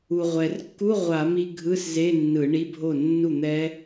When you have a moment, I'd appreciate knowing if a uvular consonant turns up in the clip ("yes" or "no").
yes